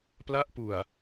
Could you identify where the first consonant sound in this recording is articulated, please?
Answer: labial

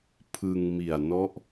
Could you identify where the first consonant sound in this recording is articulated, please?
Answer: labial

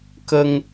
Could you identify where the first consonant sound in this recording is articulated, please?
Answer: velar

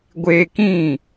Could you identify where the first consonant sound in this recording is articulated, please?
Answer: velar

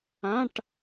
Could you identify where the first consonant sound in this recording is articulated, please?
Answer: retroflex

